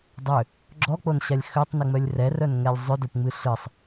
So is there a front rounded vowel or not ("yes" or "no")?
yes